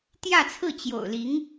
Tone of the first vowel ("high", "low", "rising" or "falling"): falling